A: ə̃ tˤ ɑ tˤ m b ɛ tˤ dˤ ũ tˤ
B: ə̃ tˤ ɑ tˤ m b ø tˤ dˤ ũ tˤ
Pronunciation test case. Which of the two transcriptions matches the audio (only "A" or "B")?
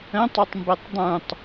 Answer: A